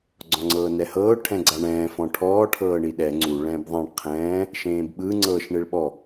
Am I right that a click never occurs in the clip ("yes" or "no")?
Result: no